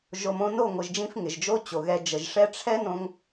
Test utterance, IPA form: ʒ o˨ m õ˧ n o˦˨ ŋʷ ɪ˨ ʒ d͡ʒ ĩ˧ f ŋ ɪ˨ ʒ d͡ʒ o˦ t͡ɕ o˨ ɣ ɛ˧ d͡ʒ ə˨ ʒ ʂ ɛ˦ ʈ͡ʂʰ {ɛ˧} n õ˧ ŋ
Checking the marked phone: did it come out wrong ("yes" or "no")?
yes